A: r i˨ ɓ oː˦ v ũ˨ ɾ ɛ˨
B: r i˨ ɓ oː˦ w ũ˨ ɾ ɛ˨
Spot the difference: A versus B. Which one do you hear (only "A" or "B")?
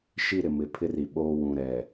B